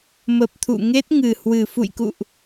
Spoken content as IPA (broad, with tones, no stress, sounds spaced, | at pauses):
m ə˨˩ p̚ t̪ʰ ṵ˧˨ ŋ e˦˥ t̚ ŋ ɨ˨˩ h w ɨ˨˩ f ṵ˧˨ j k ṵ˧˨ ʔ